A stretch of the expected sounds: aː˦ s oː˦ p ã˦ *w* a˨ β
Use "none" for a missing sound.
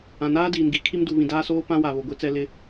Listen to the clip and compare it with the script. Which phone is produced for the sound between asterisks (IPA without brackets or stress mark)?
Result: w